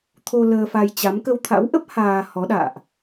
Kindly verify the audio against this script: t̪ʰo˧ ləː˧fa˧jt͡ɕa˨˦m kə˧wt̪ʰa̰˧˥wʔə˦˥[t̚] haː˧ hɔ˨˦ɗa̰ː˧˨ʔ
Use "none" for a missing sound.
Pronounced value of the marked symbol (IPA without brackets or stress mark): p̚